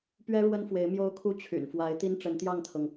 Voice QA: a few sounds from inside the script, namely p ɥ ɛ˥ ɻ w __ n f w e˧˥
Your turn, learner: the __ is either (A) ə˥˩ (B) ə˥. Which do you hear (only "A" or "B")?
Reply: B